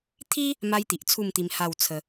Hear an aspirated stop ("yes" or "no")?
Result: yes